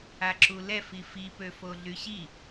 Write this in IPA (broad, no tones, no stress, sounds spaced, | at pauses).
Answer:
a ǁ u l ɛ f i f i p ø f o ɮ y ɕ i